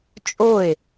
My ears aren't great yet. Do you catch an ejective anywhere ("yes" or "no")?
yes